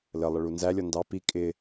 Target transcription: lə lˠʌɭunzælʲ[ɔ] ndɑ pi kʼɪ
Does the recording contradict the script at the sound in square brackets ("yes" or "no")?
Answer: no